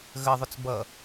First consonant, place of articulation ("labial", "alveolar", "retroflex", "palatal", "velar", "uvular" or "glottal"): velar